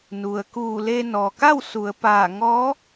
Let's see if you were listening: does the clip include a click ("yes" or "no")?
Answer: no